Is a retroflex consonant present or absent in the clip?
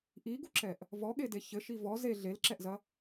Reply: absent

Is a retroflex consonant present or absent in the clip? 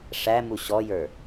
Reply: present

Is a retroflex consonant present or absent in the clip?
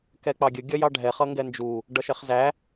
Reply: present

